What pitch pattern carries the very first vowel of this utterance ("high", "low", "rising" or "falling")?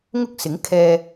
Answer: high